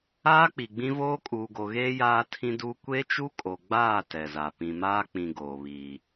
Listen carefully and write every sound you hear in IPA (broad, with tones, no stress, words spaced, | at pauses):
aː˦k͡pi˨ɡ͡bĩ˦ voː˦kʼuː˨ɡo˨ɣeː˦ jaː˦tʰĩ˦duː˦ kʷe˦t͡ʃu˦kʼo˨ɡ͡baː˦˨ tɛ˨za˨ pĩ˨maː˦k͡pĩ˨ ɡoː˨βiː˨